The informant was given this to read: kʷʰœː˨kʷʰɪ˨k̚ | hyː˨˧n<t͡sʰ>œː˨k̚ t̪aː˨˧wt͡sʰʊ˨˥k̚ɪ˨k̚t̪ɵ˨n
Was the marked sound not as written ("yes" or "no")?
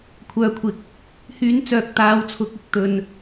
yes